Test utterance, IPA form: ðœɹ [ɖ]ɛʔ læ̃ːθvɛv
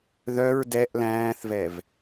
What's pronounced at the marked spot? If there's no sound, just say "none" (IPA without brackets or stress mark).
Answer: d